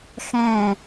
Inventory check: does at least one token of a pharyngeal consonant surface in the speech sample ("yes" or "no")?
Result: no